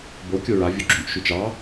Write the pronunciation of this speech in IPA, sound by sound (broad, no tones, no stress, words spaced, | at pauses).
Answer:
bo kʲoɹa vʲoɡ͡ǁyʔ ʃyt͡ʃɑ